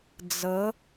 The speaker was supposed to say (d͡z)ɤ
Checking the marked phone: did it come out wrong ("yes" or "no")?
no